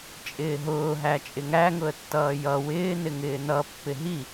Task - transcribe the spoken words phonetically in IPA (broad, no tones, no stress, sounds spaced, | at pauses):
t͡ʃʼ ɪː ɦ ʊː ɦ æ t͡ʃʼ ɪ ŋ æ ŋ ʊ ə̯ tː ʌː j ʌ w ɪː n ɪ ŋ ɪː n ʌ pː ɪ ɦ i